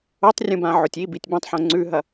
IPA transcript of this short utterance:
o tˤ rʲ ũ b ã ʕ o tʲ i b i tʲ b ɐ̃ tˤ ħ õ ŋ͡ǀ ʉ ɦ ɐ

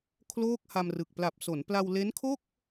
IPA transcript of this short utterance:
kʰ l oː˥˩ k̚ h a˧ m r ɯ˨˩ k̚ p l a˨˩ p̚ s o˩˦ n p l a˧ w l e˦˥ n kʰ o˥˩ k̚

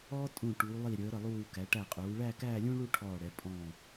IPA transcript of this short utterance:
ɔː˥ tʼ ũ˧˩ ʈ uː˩˧ lˠ i˧˩ ɾʲ əː˩˧ ɾ ə˧˩ lˠ uː˧˩ k æ˩˧ ʈ æ˧˩ qʼ uː˩˧ ɭ æː˥˧ k æː˥˧ lʲ ũː˥ ɭ u˥˧ ʈʰ ɔː˧˩ ɽ ɛ˩˧ pʼ ɔ̃˧˩

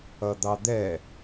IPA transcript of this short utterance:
ʌ d̪ ɑ d̪ ɛ

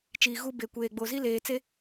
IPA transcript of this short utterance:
t͡ʃ iː˨ ɣ u˦ b e˨ kʷ eː˨ ɡ͡b o˨ z i˦ l eː˨ t͡s e˦

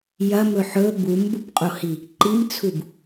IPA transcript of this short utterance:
j ɐ m ɵ ħ ɵ b u m b u p qʼ o h i | ǃ i m t͡sʰ u b

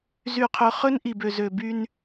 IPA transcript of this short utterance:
z y˨ qʰ ɵ˨ χ ɵ˦ n ʔ i˨ b ø˨ z ø˨ b y˦ n

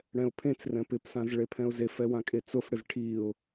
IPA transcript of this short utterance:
ɽ ɛ̃ ʊ̯ pʰ ẽ t͡s r ɛ̃ p ɪ p s ã z ɭ e pʰ ɛ̃ ʊ̯ z e f ɛ w ã kʼ e t͡s ʊ f ɽ ɪ z ʈʰ i ʊ̯

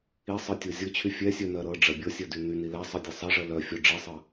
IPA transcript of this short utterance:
i sˤ ɤ tʲ o zʲ ɤ t͡ɕʰ y fʲ ɛ sʲ œ n ɜ ɾ ɤ ɖ͡ʐ ɜ bʲ ɤ sʲ ɜ d y n y n i l ɛ sˤ ɜ dʲ ɤ sˤ ɜ ʐ ɜ l œ fʲ o ɖ͡ʐ i sˤ ɤ

